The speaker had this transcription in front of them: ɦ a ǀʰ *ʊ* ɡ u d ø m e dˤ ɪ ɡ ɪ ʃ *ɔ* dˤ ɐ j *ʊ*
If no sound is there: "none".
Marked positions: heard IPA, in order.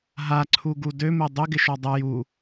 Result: u, ɔ, u

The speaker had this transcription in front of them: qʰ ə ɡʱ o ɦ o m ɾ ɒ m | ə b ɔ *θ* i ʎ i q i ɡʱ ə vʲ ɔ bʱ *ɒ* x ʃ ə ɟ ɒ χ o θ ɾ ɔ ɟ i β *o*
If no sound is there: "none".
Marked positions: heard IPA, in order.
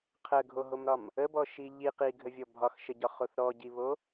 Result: ʃ, ɒ, o

